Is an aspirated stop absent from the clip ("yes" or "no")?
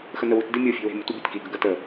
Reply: yes